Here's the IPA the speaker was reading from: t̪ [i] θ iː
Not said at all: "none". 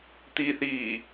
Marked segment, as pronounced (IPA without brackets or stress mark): i